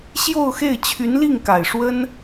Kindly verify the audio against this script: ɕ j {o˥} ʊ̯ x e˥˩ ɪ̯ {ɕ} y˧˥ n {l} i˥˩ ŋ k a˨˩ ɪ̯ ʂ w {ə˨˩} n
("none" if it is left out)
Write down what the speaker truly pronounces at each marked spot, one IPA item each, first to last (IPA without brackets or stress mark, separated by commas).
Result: o˥˧, t͡ɕʰ, l, ə˥